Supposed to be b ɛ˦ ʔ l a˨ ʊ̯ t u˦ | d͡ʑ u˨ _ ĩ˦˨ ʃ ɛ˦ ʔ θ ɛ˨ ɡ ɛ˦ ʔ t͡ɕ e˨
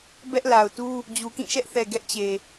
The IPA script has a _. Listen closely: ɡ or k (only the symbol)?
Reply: k